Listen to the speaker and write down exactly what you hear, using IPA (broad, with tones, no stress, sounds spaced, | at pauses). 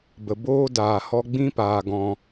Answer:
b ə˨ b oː˦ d aː˨ h ɔ˧ ɡ͡b ĩ˦ p aː˨ ɡ ɔ̃˧